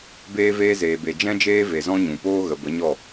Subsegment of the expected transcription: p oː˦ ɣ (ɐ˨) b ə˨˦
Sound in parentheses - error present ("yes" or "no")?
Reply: yes